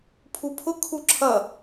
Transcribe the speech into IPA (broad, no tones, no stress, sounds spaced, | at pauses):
pʰ u pʰ ʊ kʰ u ǁʰ ʌ